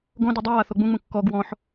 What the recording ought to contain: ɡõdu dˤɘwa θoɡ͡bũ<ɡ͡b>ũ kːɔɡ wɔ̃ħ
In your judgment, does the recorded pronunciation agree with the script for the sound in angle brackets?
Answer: no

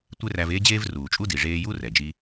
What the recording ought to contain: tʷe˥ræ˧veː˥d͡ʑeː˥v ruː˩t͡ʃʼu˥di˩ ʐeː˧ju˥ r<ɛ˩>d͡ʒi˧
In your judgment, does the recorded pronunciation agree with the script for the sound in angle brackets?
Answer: yes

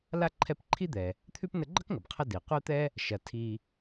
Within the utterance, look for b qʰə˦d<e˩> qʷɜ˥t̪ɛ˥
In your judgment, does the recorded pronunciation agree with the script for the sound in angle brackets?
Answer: no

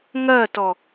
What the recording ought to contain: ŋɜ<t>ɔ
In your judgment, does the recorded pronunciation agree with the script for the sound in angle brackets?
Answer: yes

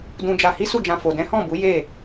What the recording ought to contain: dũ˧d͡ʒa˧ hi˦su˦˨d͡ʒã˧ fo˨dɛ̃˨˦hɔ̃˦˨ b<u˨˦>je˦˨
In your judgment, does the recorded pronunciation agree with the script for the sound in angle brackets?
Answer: yes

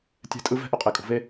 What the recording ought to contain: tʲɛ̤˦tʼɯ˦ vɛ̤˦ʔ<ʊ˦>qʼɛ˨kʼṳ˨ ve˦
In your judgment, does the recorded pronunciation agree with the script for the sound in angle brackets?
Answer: yes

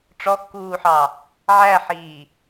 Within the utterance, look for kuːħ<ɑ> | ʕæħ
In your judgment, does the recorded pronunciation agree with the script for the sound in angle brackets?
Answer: yes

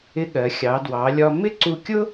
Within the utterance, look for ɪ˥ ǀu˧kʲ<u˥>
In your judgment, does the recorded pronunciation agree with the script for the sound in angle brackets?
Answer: no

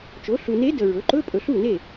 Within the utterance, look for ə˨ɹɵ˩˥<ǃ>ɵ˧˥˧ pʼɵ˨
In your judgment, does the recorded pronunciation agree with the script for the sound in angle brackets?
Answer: yes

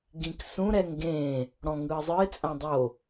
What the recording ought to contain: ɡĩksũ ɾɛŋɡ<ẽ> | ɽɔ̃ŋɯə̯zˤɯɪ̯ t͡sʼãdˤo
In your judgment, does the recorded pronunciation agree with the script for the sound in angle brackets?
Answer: yes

